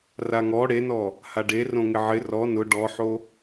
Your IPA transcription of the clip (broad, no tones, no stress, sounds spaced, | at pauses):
r a ŋ ɔ ɽ e n ɔ | h a ɖ e r õ ŋ ɪ ʕ ɪ r ɔ n ʊ ɖ ɔ ħ o